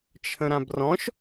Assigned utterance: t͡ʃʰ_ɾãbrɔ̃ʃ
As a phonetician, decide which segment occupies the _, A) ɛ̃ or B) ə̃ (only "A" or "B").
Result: B